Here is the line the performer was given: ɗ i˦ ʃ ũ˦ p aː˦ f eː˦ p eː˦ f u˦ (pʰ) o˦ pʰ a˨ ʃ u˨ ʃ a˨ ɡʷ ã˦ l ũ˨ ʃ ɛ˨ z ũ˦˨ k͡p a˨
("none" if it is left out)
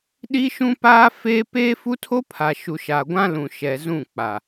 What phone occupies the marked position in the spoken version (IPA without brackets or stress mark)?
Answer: tʰ